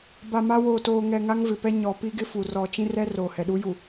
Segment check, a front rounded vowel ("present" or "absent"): absent